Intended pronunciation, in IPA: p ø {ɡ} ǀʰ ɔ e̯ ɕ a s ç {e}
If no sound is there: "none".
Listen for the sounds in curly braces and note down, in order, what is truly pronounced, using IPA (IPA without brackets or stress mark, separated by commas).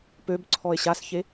b, e